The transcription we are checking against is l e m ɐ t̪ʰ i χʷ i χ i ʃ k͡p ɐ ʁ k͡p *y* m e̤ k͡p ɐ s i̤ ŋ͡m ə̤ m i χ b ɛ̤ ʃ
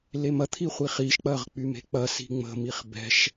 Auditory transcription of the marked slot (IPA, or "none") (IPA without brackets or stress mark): y